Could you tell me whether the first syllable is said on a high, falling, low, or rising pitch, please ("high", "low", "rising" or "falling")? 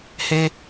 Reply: high